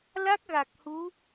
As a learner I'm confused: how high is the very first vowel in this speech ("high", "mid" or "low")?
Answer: low